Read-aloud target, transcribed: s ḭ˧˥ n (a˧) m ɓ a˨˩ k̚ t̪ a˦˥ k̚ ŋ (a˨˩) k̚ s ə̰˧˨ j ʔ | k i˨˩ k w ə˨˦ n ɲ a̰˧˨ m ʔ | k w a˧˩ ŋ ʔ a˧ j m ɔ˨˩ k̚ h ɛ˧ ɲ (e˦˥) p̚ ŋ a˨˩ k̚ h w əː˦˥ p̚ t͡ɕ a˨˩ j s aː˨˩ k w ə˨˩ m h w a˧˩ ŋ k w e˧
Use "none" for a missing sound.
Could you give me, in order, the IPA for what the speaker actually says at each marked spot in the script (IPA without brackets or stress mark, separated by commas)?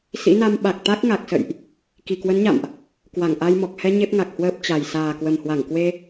a˧, a˨˩, e˦˥